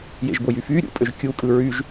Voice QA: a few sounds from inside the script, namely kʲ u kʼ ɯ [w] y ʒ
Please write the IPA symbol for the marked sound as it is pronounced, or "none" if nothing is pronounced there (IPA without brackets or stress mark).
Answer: ɹ